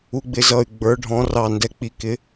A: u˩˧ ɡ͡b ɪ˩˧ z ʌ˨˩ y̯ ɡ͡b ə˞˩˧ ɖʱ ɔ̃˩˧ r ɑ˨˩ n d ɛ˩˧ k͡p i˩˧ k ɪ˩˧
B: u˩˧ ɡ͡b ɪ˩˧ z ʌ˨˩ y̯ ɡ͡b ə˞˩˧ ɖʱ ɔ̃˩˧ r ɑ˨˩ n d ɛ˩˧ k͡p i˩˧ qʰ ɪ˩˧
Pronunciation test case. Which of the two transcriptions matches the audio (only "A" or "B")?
A